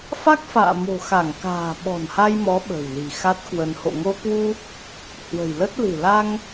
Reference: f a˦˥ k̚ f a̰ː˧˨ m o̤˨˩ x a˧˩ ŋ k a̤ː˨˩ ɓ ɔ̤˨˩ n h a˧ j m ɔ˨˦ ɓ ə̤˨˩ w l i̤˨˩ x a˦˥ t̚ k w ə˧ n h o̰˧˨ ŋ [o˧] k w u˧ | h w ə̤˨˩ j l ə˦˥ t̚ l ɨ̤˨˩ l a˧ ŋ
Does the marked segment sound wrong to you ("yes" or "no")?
no